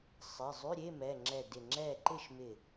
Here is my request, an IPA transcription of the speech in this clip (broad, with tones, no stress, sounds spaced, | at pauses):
sˤ ɪ˩˧˩ zˤ ʉ˧˥˧ ɾʲ e˧˥˧ m ɛ˩˧˩ ŋ͡ǁ ɛ˧˩ d ɪ˧˩ ŋ͡ǁ ɛ˥˨ ǃ ɪ˥˨ ʃ m ɪ˧˩